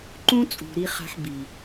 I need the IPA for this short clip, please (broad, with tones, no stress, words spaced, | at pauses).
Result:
ǃũ˦t͡sʼṳ˨ ɾi˦ χa̤˦ħ bi˨